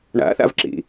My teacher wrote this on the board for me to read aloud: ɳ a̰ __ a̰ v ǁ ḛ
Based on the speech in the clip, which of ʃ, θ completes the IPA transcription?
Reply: θ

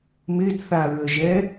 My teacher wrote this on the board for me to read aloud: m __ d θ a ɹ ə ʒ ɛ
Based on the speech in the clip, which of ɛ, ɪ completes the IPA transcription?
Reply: ɪ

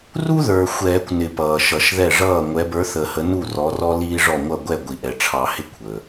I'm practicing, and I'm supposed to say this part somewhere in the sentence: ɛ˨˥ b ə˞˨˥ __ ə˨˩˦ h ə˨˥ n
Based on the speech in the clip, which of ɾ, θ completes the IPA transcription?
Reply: θ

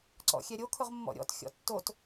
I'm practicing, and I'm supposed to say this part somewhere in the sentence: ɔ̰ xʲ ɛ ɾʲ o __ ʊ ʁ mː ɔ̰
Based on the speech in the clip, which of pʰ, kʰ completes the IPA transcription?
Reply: kʰ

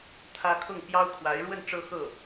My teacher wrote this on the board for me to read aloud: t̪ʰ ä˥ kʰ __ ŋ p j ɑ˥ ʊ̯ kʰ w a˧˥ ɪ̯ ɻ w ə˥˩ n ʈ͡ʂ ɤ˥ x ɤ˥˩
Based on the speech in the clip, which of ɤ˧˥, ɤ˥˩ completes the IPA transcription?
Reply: ɤ˥˩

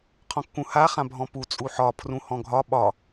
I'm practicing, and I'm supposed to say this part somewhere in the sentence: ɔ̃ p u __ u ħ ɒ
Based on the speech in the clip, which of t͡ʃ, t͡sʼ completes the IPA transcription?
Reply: t͡sʼ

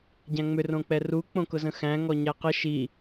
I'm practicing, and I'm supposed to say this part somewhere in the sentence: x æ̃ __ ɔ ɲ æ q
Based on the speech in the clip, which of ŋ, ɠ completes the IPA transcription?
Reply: ŋ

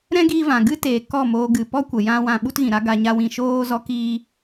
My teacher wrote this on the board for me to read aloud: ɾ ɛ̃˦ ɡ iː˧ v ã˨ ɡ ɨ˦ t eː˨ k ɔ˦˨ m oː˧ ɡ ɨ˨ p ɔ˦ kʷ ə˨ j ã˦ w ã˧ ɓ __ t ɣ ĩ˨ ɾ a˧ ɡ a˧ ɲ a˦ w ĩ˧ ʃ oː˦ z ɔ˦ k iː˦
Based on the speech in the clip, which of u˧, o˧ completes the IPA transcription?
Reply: u˧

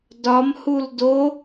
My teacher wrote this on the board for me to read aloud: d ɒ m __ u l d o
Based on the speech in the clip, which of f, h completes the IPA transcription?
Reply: h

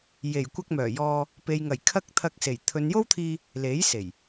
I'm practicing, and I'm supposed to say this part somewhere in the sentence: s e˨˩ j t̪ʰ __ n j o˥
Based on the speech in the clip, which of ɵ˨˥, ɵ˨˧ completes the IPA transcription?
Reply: ɵ˨˧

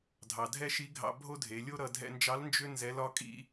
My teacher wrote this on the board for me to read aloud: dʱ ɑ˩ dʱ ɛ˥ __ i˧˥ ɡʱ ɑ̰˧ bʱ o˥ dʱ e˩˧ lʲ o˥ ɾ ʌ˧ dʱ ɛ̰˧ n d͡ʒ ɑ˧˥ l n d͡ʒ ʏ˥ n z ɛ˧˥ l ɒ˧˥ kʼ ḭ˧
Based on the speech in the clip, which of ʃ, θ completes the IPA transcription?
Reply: ʃ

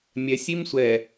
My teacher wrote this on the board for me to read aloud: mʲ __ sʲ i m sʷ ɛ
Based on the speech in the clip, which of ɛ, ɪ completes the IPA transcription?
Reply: ɛ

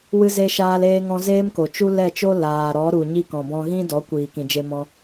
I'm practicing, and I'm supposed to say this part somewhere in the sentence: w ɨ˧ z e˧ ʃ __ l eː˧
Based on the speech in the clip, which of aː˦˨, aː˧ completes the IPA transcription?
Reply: aː˧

